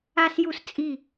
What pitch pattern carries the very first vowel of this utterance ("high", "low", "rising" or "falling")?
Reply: high